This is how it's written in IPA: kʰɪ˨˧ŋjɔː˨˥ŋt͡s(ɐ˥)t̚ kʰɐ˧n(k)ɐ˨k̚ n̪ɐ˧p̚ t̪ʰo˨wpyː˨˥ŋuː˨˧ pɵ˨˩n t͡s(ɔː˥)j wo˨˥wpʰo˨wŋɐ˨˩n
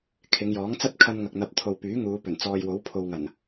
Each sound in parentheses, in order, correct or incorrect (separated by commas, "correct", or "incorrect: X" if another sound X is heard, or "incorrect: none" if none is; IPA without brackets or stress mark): correct, incorrect: ŋ, incorrect: ɔː˨